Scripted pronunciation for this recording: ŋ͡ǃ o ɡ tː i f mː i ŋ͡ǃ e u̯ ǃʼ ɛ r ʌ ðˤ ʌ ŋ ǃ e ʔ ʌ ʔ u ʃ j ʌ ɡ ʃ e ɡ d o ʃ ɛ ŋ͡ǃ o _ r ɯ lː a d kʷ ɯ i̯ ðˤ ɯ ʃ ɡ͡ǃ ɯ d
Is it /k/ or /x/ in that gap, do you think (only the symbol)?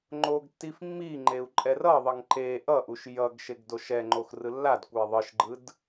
x